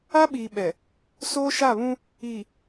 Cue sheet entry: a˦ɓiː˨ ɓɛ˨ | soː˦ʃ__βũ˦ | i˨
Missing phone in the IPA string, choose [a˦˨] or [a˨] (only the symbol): a˦˨